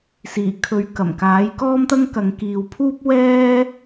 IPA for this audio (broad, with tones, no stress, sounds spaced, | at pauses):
s iː˨˩ kʰ ɵ˨˥ ɥ k ɐ˨˩ m k aː˨˥ j k ɔː˥ m t̪ ɐ˥ ŋ k ɐ˨ ŋ k iː˨ w pʰ uː˥ p̚ w ɛː˥